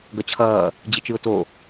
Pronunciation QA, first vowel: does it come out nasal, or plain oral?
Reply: oral